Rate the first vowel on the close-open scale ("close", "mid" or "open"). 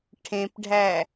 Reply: mid